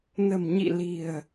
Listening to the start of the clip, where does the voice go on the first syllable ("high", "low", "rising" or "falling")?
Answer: low